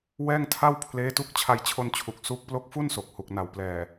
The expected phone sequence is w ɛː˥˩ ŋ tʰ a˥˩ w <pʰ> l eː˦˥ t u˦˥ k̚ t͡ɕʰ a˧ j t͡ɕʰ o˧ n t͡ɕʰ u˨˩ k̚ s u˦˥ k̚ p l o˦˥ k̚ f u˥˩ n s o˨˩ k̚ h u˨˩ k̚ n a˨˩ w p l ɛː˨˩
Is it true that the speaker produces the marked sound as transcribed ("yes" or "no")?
yes